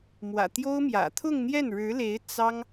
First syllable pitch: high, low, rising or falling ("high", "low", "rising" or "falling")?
low